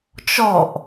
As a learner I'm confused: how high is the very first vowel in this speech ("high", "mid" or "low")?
mid